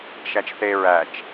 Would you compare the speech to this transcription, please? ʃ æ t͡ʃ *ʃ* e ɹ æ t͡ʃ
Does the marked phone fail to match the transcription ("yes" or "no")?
yes